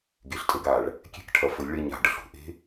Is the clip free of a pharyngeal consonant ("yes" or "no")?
yes